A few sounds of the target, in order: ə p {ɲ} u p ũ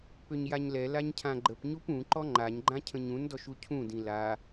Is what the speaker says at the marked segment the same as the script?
yes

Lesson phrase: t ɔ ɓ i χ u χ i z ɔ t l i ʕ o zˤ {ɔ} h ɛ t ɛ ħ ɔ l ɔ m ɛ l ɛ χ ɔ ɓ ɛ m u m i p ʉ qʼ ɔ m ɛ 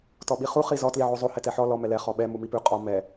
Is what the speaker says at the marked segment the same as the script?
no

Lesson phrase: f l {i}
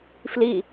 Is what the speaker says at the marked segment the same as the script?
yes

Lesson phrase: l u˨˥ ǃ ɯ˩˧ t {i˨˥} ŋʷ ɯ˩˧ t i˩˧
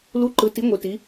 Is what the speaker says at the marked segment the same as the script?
yes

